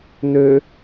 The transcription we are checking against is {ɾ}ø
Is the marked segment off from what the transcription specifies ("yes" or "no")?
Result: yes